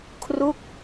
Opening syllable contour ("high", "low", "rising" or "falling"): falling